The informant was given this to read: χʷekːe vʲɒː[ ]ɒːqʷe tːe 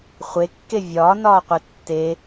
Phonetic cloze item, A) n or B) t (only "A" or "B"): A